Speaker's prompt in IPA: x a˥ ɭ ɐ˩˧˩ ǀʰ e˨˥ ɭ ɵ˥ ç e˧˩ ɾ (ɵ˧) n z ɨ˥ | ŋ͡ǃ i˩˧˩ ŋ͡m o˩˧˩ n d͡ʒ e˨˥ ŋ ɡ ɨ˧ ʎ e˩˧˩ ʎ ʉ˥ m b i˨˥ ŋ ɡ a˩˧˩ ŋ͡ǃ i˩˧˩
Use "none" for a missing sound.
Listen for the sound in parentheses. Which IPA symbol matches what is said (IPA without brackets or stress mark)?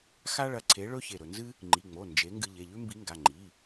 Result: ɵ˧